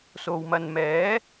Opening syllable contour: low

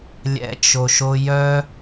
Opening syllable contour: low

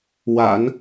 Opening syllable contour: low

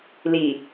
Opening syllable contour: low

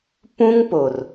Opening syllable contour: high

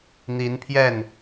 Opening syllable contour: rising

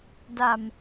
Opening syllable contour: low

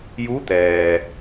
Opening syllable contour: rising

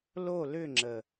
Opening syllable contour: falling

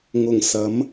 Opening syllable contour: low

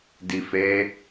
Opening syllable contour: low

